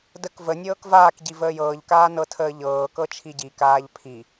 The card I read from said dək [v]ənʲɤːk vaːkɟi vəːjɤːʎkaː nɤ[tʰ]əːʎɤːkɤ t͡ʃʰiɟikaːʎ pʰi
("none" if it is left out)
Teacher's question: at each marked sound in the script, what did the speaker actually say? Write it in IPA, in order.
v, tʰ

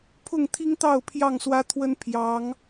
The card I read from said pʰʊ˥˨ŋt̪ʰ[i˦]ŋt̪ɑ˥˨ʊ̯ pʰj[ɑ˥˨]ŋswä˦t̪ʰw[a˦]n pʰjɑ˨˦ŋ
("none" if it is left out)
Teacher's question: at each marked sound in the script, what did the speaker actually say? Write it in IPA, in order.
i˦, ɑ˥˨, ə˦

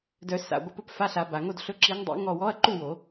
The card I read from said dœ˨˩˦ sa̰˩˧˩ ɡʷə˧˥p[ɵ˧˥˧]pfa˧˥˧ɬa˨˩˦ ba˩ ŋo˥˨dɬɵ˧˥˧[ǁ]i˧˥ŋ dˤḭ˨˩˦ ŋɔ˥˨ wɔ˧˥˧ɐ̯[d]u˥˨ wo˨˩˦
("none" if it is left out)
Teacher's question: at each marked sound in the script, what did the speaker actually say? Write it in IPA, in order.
ɵ˧˥˧, ǁ, ǃ

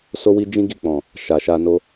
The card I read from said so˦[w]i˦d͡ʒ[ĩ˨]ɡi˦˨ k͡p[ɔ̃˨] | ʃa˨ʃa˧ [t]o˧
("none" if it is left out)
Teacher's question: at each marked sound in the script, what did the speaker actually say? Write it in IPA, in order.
w, ĩ˦, ɔ̃˨, n

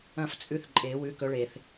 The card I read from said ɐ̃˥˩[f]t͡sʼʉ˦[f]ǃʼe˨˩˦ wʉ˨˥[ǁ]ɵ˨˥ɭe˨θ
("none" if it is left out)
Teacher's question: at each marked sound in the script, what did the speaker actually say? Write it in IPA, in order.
f, θ, k

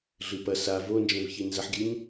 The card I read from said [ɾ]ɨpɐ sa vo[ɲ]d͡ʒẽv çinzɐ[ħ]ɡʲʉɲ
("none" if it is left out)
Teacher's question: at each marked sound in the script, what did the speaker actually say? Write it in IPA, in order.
ɮ, n, ħ

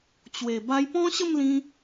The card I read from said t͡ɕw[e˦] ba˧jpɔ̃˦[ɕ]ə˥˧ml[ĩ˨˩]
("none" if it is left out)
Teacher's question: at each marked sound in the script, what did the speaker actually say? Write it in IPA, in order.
e˨˩, ɕ, ĩ˧

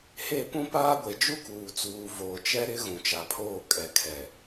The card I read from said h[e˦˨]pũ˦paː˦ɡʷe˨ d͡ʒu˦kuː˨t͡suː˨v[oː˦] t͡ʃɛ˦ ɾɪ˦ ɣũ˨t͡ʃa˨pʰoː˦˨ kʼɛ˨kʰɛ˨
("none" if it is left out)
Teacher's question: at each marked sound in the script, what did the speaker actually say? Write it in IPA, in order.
e˦˨, oː˨

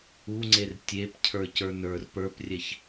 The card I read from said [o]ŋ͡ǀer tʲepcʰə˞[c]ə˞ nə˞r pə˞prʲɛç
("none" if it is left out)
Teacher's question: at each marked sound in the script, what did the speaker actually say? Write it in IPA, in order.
u, c

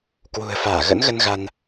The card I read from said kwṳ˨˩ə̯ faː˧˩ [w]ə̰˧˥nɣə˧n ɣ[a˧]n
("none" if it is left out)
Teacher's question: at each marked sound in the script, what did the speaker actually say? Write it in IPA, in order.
ɣ, a˧

